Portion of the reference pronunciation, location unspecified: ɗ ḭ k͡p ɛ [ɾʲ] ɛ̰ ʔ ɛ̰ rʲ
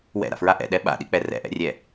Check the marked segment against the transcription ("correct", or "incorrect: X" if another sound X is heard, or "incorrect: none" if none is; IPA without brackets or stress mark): incorrect: r